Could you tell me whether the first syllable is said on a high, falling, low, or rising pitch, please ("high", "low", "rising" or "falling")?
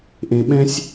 low